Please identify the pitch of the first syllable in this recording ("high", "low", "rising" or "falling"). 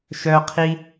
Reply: high